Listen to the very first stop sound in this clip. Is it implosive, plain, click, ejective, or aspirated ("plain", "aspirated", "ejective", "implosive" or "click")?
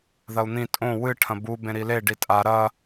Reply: ejective